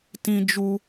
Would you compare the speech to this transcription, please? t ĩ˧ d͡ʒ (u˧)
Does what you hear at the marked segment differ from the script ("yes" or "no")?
no